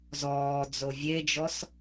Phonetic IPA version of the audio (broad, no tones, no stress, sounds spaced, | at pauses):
z ɔː d͡z o vʲ e d͡ʒ ɔ s